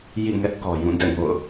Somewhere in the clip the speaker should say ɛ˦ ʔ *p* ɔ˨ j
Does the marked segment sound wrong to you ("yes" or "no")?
yes